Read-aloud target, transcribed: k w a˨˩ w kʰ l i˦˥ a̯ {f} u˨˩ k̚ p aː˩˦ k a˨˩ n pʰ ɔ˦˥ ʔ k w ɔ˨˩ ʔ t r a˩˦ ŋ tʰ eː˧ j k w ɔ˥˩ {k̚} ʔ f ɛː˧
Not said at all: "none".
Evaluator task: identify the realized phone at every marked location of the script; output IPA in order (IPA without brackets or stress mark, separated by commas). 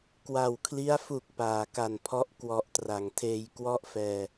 f, none